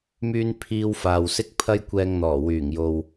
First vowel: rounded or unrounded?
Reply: rounded